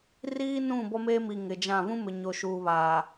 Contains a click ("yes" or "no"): no